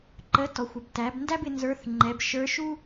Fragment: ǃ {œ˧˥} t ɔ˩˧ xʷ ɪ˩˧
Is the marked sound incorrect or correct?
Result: incorrect